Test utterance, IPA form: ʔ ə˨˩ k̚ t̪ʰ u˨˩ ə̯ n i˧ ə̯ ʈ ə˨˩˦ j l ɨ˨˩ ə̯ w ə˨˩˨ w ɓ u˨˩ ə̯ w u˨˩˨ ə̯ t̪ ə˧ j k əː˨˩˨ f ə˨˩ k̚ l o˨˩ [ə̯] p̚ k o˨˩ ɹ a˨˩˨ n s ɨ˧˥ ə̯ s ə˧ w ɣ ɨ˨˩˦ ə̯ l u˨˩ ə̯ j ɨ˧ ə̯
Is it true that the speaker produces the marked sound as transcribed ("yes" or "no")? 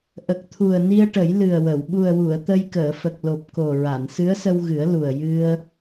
no